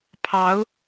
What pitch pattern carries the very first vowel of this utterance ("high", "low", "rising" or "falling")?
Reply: rising